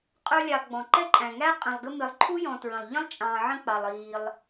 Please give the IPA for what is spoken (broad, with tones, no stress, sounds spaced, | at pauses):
qʼ ə˞˦ lʲ ɑ˨ ɡ͡b ɔ̃˩ ǃ ɛ˦ ǃʼ æ̃˩ ŋ æ˦ qʼ ɛ̃˨ lˠ ɡ ə˦ m ɪ˨ lˠ ǃʰ u˥ j ɔ̃˨ t ɹ ə̃˩ lˠ ʎ ə̃˥ lˠ t͡ʃʼ ɑ̃˩ ʕ ə̃˦ k͡p ɑ˩ lˠ iː˩ lˠ